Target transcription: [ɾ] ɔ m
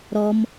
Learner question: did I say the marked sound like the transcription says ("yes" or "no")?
yes